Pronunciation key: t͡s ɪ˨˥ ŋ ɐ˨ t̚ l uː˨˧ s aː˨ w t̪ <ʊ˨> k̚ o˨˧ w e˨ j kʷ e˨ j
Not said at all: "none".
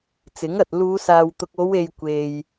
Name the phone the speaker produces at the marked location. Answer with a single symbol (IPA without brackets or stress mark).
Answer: ʊ˨